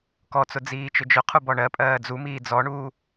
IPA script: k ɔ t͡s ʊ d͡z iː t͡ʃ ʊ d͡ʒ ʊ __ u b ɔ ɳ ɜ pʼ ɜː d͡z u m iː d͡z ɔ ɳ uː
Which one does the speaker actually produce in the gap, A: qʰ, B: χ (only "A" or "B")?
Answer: A